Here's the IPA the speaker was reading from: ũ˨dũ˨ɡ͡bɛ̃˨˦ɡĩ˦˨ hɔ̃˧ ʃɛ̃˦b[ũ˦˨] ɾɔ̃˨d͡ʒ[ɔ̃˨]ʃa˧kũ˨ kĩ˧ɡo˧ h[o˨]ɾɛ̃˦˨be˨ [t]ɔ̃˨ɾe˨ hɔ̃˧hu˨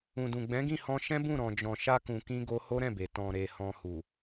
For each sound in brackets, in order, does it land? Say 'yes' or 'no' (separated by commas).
yes, yes, no, yes